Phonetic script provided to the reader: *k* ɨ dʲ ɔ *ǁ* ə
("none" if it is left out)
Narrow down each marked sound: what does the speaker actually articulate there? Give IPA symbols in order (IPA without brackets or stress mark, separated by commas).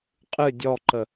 qʼ, ǃ